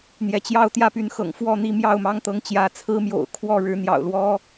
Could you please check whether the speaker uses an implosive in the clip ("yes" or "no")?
no